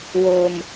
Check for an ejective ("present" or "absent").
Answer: absent